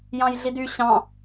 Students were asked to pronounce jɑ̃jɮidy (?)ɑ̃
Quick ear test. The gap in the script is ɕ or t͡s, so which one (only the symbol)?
ɕ